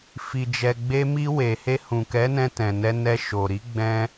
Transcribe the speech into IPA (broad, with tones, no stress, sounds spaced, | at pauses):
f i˨ d͡ʒ ɛ˨ ɡ͡b e˧ m i˧ w e˨ h e˧ h ũ˨ k ɛ˨˦ n ɛ̃˧ t ɛ̃˨ n ɛ˧ n ɛ˧ ʃ o˨ ɾ i˨˦ ɡ͡b ɛ̃˧